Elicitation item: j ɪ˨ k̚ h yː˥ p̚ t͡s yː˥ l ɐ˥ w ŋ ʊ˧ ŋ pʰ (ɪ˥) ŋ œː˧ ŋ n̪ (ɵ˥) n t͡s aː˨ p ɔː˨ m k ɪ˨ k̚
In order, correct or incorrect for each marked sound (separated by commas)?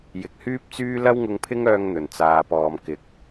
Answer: correct, incorrect